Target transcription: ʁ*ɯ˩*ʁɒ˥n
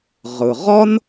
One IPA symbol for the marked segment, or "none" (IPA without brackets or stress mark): ɯ˩